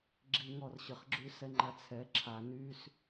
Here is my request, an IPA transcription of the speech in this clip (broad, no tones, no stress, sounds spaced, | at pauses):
ɡ͡ǁ i ŋ ɔ r ɕ ə χ ɡ͡ǁ y s ɛ ŋ͡ǃ a t͡sʰ ɛ ǁʰ a n y s